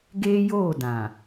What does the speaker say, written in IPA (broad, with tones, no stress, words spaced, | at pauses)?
ɡeː˦joː˦˨ dã˨